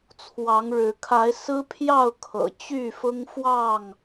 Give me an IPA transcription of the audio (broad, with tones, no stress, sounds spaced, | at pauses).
t͡sʰ w ɑ˨˦ ŋ ɻ ɻ̩˨˦ kʰ a˨˦ ɪ̯ s ɹ̩˦ pʰ j ɑ˥˨ ʊ̯ kʰ ɤ̰˨˩ t͡ɕ y˥˨ f ʊ˦ ŋ f w ɑ˥˨ ŋ